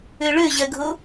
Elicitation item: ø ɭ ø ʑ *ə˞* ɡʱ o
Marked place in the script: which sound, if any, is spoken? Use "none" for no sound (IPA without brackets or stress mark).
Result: ɜ